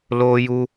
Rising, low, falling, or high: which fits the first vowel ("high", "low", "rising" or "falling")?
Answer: high